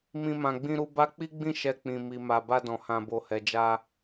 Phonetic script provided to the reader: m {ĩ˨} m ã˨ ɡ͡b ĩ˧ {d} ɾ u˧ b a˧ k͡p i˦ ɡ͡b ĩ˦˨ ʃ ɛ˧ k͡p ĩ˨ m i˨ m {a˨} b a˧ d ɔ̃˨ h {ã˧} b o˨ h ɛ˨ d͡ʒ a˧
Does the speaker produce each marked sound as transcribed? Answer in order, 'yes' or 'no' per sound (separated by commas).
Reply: yes, no, yes, no